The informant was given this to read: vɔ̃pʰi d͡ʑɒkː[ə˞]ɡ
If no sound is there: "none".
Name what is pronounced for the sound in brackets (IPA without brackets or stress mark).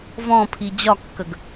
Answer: ə